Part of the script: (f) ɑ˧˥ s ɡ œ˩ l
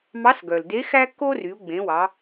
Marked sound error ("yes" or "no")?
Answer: yes